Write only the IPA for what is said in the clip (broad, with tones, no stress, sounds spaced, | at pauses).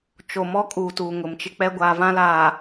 t͡ʃ o˨ m ɔ˦ kʼ uː˨ t uː˨ ŋ ʊ˨ m t͡ʃ ɪ˦ k͡p ɛ˦ ɡʷ aː˦ v ã˦ l aː˨